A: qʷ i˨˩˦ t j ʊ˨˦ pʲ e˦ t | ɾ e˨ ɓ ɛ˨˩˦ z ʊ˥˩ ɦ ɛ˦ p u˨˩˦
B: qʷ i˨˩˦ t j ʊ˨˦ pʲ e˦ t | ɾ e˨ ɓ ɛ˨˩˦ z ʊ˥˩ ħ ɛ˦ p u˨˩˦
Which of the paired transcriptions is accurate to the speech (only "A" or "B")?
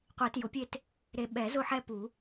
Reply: B